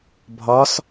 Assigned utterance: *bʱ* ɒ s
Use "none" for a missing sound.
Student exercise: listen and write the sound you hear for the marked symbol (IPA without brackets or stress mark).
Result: bʱ